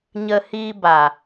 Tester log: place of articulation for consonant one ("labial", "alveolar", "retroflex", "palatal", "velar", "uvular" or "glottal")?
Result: palatal